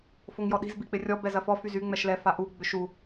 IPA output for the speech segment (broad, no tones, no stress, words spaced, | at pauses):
foŋjɔɗi̤z bik͡pɪrʲɔ bɛzɐfɔ fyzy ŋ͡mɛʃlɛ faʔu ɡ͡bʏʃu